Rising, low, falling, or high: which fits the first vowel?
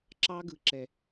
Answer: high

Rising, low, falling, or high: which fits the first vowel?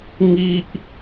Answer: high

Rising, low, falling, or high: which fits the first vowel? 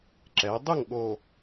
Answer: rising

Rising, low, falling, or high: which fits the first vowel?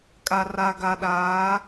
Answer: low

